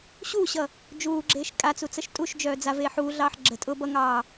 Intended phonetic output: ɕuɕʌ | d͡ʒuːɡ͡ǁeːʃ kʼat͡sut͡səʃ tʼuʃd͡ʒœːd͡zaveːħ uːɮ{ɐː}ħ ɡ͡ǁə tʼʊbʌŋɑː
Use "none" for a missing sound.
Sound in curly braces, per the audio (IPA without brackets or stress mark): ɑː